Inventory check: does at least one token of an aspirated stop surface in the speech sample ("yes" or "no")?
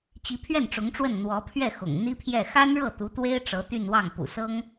yes